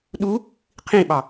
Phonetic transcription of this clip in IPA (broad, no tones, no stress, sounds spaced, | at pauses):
ɗ u | qʰ ĩ ɓ ɑ